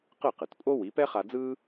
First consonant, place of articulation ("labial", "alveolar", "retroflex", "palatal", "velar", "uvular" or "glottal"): uvular